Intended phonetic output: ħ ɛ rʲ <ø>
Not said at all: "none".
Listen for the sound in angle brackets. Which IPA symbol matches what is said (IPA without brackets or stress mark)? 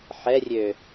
ø